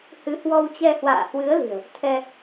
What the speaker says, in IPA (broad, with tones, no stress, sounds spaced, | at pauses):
h ɨ˨˦ h w ɔ˧ w t͡ɕ ɛ˧ h w a̰ː˧˨ h w ɨ˨˦ ə̯ l i̤˨˩ ə̯ | t̪ʰ ɛ˧